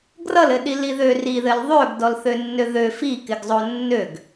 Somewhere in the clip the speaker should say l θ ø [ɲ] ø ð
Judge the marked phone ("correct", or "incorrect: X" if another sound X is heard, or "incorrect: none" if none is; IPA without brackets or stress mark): incorrect: nː